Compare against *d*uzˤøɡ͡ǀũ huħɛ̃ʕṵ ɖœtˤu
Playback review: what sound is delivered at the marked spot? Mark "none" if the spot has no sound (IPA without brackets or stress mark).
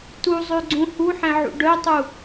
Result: t